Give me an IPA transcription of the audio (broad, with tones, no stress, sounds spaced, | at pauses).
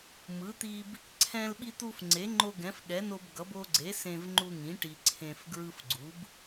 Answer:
m ɯ˩˥ t̪ i˧ b | ǀʰ ɛ̃˧ l ɓ i˧ t̪ u˧ f ŋ͡ǀ e˩˥ ŋ͡ǃ o˧ ɡ ɛ̃˩˥ f ɠ ɛ˩˥ n o˧ b ɡ ʌ˩˥ b o˧ ɡ͡ǀ e˩˥ s ẽ˧ v ŋ͡ǃ u˧ ŋ ĩ˩˥ ʈ i˧ ǀʰ ẽ˧ f ɡ ɹ ɯ˧ f ɡ͡ǀ u˩˥ b